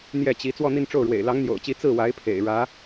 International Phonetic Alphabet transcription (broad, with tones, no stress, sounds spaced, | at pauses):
n̪ j ɛ˥˩ t͡ɕ i˧˥ t͡s w ɔ˥˧ n̪ i˥˧ n ʈ͡ʂ o˥˩ ʊ̯ ɻ w ḛ˨˩ ɪ̯ l ɑ˧˥ ŋ n̪ j o̰˨˩ ʊ̯ t͡ɕ i˧˥ t͡s ɹ̩˥˩ w a˧˥ ɪ̯ pʰ ḛ˨˩ ɪ̯ ɻ ä˧˥